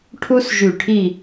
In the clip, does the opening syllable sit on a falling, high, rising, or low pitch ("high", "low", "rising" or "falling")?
high